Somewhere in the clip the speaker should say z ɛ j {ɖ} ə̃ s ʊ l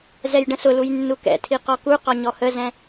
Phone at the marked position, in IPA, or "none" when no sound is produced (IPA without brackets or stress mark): ɖ